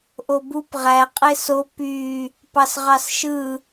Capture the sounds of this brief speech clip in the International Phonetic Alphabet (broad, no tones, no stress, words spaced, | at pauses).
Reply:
ʔobup ʁæ qʼeso py | pɑsʁɑsʃɯ